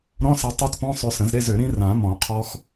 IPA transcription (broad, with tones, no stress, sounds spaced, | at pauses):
ɾ ɔ̃˧˥˧ s ɛ˧ tˤ ɛ˦˥ t p ɔ̃˧˥˧ sˤ ø˧ s ə̃˨˩˦ z ɾ e˧˥˧ z ø˨˩˦ ɾ ĩ˦˥ r ã˨˩˦ m ɔ̃˨˩˦ qʰ ɔ˦˥ x